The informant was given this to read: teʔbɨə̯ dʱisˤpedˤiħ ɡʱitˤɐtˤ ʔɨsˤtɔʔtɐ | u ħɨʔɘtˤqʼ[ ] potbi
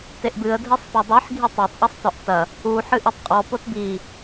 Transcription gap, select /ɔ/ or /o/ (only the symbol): ɔ